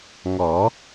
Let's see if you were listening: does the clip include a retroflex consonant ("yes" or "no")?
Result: no